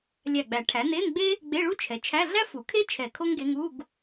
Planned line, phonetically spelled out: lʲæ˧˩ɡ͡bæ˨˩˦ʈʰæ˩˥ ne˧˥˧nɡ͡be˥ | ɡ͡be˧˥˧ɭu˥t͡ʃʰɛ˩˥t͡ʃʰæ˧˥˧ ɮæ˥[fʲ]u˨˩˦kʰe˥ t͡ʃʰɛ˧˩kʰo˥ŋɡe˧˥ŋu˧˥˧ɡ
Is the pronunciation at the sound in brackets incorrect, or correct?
incorrect